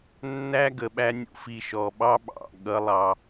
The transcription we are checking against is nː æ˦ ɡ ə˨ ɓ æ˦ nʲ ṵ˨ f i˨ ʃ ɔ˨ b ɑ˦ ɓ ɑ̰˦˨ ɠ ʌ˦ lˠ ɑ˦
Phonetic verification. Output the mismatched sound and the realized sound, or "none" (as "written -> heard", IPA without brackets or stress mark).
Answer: b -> ɓ